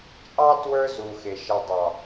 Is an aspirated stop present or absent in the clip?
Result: absent